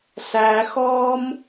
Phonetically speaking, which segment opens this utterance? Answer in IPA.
s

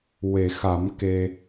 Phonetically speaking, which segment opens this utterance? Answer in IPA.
w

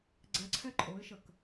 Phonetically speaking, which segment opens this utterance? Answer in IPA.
ɡ͡ǀ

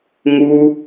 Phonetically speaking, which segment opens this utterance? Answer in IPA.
ŋ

